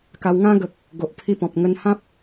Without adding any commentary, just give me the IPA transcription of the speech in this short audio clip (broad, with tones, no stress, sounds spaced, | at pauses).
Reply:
k a˧ w ŋ ã˦ ɡ ə˨ k̚ | ɡ o˨ ʔ pʰ i˧ p ɔ̃˨ p̚ ŋ ə˧ n h ã˦ p̚